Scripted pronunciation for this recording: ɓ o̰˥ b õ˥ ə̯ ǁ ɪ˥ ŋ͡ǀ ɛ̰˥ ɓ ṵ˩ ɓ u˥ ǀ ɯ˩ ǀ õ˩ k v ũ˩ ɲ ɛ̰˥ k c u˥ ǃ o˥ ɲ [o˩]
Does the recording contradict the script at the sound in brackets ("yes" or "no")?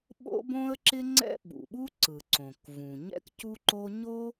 yes